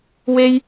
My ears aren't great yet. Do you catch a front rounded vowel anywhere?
no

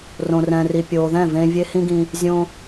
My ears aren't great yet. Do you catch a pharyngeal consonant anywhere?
no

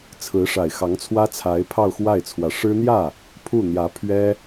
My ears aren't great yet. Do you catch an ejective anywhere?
no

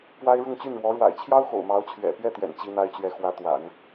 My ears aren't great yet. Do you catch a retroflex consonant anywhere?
yes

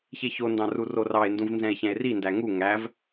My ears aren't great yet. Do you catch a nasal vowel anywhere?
yes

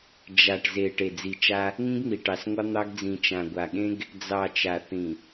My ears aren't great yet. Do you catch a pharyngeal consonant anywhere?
no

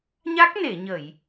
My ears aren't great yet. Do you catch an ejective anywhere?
no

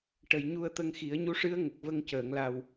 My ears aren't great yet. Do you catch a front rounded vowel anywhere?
no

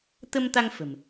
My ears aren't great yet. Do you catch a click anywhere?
no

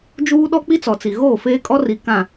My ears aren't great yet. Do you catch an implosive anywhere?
yes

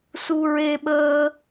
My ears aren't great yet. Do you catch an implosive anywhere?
yes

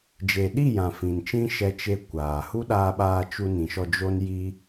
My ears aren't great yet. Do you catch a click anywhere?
no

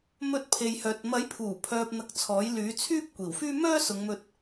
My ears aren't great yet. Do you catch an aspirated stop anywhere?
yes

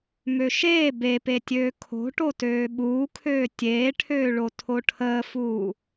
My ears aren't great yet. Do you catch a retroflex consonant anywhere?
yes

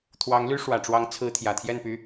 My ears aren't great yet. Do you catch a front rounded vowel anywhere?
yes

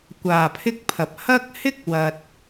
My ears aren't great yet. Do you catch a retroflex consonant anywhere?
no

